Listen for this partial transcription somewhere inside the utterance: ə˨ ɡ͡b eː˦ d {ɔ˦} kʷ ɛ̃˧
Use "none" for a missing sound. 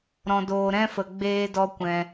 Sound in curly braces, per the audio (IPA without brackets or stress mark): ɔ˦